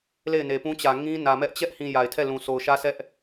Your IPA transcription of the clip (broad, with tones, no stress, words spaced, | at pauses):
le˦˨ɪ̯ne˨pũ˦ t͡ɕä˨ŋĩ˦nä˨mɛ˦ʔ t͡ɕɛ˦ʔhĩ˨ ja˨ɪ̯tʰɛ˦˨lũ˨ so˨ʊ̯ʃä˦sʰɛ˦ʔ